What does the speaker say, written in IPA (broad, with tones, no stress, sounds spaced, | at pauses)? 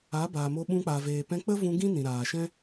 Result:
a˨˦ b aː˨ m o˧ ɓ ũ˧ k͡p a˨ v eː˨ p ɛ̃˧ k͡p ə˦ v ũ˧ ɡ ĩ˦ n ĩ˨ ɾ aː˨ ʃ ɛ̃˦